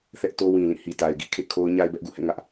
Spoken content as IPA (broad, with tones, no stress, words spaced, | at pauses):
θɛ˦ʔto˦wĩ˨lĩ˦˨ hi˨ta˨ɪ̯ɡḭ˦˨kʰḛ˦˨ kʰo˦ʊ̯ ɲa˦ɪ̯bɛ˦ʔɡṵ˦˨hɛ̰˦˨ ŋä˦ʔ